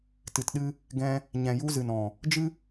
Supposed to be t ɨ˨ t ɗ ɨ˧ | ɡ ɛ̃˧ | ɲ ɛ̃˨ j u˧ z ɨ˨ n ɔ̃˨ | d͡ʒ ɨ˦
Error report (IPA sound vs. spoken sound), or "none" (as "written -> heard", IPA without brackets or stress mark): none